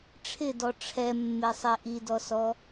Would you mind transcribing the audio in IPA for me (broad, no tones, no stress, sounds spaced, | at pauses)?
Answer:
ʈ͡ʂʰ ɪ d ɔ ʈ͡ʂʰ ɛ mː e sˤ e ʔ i d ɔ s ɔ